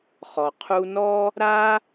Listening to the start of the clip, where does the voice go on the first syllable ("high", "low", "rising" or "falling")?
low